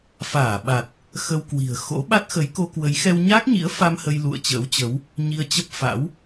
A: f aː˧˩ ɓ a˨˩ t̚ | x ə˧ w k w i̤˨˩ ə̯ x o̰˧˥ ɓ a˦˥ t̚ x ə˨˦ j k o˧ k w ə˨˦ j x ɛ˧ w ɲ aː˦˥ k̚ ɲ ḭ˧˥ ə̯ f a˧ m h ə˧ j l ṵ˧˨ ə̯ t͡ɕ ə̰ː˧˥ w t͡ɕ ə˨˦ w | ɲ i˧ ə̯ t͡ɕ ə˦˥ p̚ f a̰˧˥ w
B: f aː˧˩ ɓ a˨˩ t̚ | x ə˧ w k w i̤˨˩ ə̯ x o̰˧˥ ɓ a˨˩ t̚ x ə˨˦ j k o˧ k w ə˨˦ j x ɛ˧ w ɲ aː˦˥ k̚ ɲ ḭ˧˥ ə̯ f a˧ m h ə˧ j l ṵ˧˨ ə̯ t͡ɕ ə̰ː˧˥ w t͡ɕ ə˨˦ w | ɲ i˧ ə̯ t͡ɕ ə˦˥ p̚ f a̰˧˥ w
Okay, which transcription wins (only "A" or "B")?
A